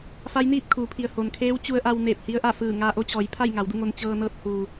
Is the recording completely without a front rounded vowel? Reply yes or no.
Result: yes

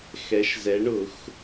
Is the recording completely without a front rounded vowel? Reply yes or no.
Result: yes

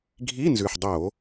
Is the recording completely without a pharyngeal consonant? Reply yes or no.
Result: no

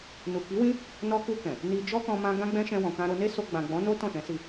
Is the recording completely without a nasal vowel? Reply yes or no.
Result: no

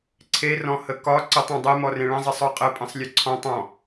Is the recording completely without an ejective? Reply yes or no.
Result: no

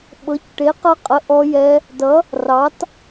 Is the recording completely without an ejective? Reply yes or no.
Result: no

